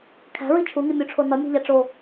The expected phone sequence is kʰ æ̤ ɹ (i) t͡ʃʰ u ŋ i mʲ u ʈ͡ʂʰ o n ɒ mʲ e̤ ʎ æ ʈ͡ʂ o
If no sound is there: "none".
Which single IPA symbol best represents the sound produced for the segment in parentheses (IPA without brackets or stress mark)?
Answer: i